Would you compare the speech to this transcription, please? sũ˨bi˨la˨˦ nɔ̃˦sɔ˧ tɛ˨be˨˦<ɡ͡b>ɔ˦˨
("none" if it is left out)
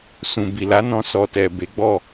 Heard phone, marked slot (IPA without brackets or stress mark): ɡ͡b